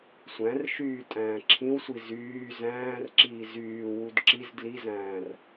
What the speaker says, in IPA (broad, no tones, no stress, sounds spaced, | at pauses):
sʷ æ̃ r ʃ yː tʼ æ̃ː ǁʰ ĩ w sʷ i z yː z æ̃ː r ǁ iː z yː w u d ǁ i z d l i z æ̃ː r